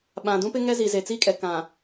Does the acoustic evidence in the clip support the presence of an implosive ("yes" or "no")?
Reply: yes